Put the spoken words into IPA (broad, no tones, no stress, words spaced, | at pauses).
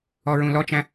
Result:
ɔɹũlɔt͡ʃæ̃